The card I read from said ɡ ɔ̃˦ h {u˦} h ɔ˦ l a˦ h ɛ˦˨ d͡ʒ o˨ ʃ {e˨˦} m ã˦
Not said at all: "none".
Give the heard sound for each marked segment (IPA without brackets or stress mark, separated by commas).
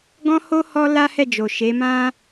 o˦, e˨˦